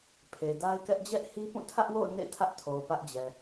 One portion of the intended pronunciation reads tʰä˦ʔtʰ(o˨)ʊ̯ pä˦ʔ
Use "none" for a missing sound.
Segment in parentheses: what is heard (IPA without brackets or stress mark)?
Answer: o˨